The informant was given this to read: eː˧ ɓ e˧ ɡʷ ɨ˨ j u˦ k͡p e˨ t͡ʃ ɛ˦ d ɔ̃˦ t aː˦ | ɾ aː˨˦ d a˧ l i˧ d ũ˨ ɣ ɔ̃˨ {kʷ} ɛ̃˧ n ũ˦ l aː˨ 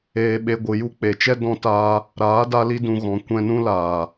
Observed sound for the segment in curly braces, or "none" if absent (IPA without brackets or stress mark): kʷ